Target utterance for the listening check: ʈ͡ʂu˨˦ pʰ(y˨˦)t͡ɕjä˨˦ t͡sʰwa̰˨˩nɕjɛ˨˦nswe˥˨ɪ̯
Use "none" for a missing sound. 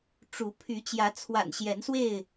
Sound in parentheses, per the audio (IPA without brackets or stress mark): y˨˦